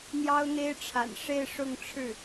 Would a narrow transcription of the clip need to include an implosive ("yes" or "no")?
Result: no